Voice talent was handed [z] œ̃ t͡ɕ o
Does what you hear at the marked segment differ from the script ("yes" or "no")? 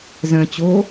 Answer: no